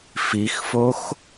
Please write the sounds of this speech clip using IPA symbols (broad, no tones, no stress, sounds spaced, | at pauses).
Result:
f i x f o x